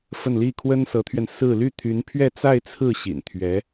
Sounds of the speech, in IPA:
f ə˥˧ n l i˥˩ kʰ w ə˥ n s ɤ˧˥ t̪ʰ ɥ ɛ˧ n s ɹ̩˥˧ l y˥˩ t̪ʰ y˧˥ n pʰ ɥ ɛ˥˧ t͡s a˥˧ ɪ̯ t͡sʰ ɹ̩˥˩ ɕ ḭ˨˩ n t̪ʰ ɥ ɛ˧˥

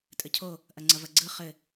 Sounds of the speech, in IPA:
tʼ ɘ cʰ o | ʔ ɐ ŋ͡ǀ ɐ v ɐ ɡ͡ǀ ɯ χ ɘ

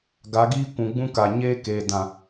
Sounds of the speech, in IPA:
ɡ a˨˦ ɡ iː˦ kʷ ũ˨ ɡ͡b ũ˦ k a˨ ɲ eː˦ k eː˨ d ã˨

